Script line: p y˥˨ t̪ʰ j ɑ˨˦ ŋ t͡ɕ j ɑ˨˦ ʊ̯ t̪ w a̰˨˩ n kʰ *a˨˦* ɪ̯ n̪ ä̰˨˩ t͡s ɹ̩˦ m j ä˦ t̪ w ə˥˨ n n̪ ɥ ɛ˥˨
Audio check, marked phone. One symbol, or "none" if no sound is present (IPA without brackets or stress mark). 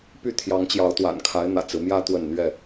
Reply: a˨˦